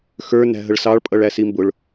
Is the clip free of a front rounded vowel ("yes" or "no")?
yes